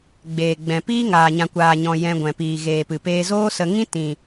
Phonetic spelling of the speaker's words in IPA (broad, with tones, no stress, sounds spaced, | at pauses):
ɡ͡b eː˨ ɡ͡b ɛ̃˨ p iː˦ ŋ aː˨ ɲ ã˨ kʷ aː˨ ɲ ɔ̃˨ j ɛ̃˧ ɡʷ ɛ̃˨ p iː˨ ɣ eː˨ p ɨ˨ p eː˧ z oː˦ s ə˧ ŋ ĩ˦ t ĩ˨